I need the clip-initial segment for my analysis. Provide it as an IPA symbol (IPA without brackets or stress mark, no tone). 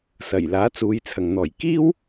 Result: s